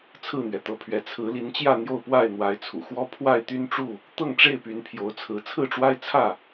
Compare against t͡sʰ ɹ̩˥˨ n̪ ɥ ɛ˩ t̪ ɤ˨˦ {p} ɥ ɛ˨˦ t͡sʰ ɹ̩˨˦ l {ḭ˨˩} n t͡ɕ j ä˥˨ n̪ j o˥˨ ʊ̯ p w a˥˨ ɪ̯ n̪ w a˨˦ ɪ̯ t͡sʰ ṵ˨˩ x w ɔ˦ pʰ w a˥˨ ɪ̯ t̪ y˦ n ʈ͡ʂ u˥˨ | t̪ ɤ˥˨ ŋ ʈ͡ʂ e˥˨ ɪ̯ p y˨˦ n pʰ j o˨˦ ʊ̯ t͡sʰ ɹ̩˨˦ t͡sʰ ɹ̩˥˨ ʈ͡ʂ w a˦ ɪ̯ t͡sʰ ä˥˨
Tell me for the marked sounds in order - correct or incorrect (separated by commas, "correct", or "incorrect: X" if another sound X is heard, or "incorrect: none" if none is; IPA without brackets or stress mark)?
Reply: incorrect: pʰ, incorrect: i˨˦